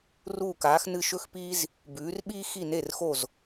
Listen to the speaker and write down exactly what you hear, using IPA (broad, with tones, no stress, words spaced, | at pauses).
ruː˧˩kaː˩˧xnɨ˧˩ ʃɵ˦xpi˦z | bʉː˩˧rɓiː˦ xi˧˩ne˧˩rxo˧˩z